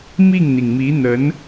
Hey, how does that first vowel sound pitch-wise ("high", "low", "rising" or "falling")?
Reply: falling